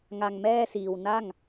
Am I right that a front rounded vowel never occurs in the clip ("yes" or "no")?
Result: yes